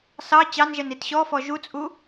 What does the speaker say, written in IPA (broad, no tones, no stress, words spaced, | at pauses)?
sɑ t͡ɕɑnʒɛn itɕɔfɔ ʒut͡sʼu